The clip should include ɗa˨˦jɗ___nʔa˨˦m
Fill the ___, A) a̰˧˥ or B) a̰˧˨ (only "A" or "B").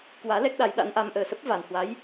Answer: A